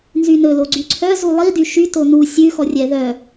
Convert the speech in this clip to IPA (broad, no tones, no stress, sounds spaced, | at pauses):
n z y n ɵ l o ɡ͡ǀ y ǀʰ œ z u lˠ i d y ʃ y t o n u sʲ ʉ x ɔ rʲ ɛ ð œ